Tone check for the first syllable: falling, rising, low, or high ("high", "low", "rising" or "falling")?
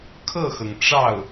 falling